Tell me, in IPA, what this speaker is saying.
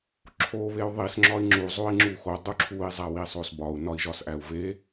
ǁʰ o β e u̯ ðˤ i s ŋ͡ǁ ɒ i̯ ŋ͡ǁ u zˤ o i̯ ŋ͡ǁ u x o dˤ u ǁʰ u i̯ zˤ æ w i sˤ o s b ɒ u̯ n ɒ i̯ ʒ ɒ s ʔ æ u̯ v e

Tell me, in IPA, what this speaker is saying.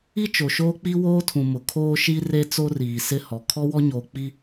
i˦ t͡ʃ o˨ ʃ oː˦ k͡p i˦ w oː˦ tʰ ũ˨ m ʊ˨ kʰ oː˦ ʃ i˦ r e˦ t͡s o˦ r iː˨ s ɪ˦ h ɔ˨ kʰ ɔ˦ w ɔ˦ ɲ oː˨ k͡p i˦

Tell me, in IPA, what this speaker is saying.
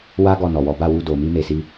w a˦ ɡ ɔ˦˨ n ɔ˨ w ɔ˨˦ b a˦˨ w u˧ d o˨ m i˧ m e˨ s i˧

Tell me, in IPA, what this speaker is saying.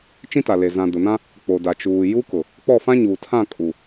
t͡ʃ ĩ˦ t a˨ l e˨ z ã˨ d ʊ˨ n ã˦ | k͡p o˨ d a˨ t͡ʃ uː˨ j u˦ k ʊ˨ | k͡p ɔ˦˨ f ã˦ ɲ uː˨ tʰ ã˦˨ kʼ u˨

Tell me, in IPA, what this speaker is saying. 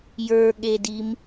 j ə˞ ɠ e d i m

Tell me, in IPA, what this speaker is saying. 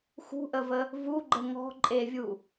x ṳ ʔ ə v ə | v u ɡ͡ǃ ə ŋ ɔ̤ ǃʼ e vʲ u

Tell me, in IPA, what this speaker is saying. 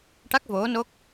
ʈ a˦˥ k̚ v o˧˥ n o˦˥ k̚

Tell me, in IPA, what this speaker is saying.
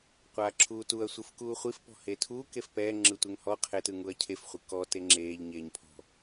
qʷ aː ǁʰ uː t u ɐ̯ sʷ ɯ f k uː χʷ i f p ɔ̤ h eː tʰ uː k e f p ɛː ŋ͡ǁ ɯ tʷ e ŋ h ɔ qʰ e t ɯ ŋ u ɐ̯ cʰ e f χʷ ɯ k ɔ t e ŋ͡ǁ eː ʎ ɲ eː ɲ pʰ ɔ̤

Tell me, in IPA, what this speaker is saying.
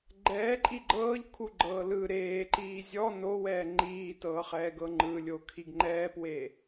ɡ͡ǃ ɛː ǃʼ i ɡ͡ǃ ɤː ʎ kʰ u ɡ͡ǃ ɤː l ɯ ɾ eː ǃ iː zʲ ɔ n o w ɛː ŋ͡ǃ iː t ɤː χ ɛː ɡ ɤ ŋ͡ǃ ɯ lʲ o kʰ i ɡ ŋ͡ǃ ɛː p w e

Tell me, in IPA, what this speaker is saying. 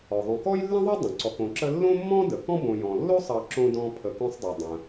ɔ˩ ðˤ õ˨ k ɔ˥ j lː ə̃˥ ðˤ o˥ dˤ ə̃˩ ǀ ɔ˨ k õ˨ ǁ ə˦ lː õ˥ mː ɔ̃˥ d ə˩ k ɔ̃˥ b õ˨ j ɔ̃˩ lː o˥ sˤ ʌ˨ ǁ õ˥ d ɔ̃˦ pʰ ə˨ k õ˥ sˤ dˤ o˩ dˤ ə̃˩

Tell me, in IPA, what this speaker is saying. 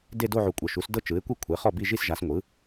d e˥˧ d o˥˧ ʕ u˨ kʷʼ ɤ˨ ʃ u˩˥ s d ɤ˥˧ t͡ʃ ɯ˩˥ ɪ̯ kʷ i˥˩ kʷʰ e˩˥ χ ɔ˥˩ b i˥˧ ʒ i˥˧ s ʒ a˩˥ s ŋʷ ɯ˩˥

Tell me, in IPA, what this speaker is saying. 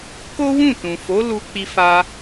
k o˦ w ũ˦˨ t ũ˨ f o˨˦ l u˧ k͡p i˧ f a˧

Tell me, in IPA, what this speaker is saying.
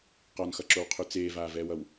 q ɒ n x ʌ ǁ o w qʰ ʉ t͡s eː v aː v ɛː w ʌ w

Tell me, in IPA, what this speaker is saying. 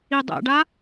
i dˤ ɛ̰ ɖ a

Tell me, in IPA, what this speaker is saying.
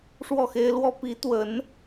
ʂ w ɔ˥˩ x e˥ ɪ̯ l w ɔ˥ p i˧˥ t̪ w ə˧˥ n

